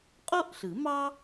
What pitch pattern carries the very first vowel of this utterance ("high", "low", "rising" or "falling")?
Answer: high